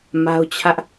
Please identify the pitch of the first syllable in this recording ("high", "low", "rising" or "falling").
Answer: high